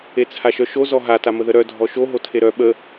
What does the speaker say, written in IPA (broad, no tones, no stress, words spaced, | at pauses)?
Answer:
et͡sʰaʃœʃo zɔɦa taməðəɾœ dʱɔʃo ɦotʰeɾœ ɓə